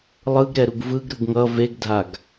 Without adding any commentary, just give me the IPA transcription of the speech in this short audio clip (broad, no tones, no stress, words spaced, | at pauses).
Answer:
lˠɯɡɾɛɾuɡ vɯɡɾɯɡ ŋʌ veɡdʱaɡ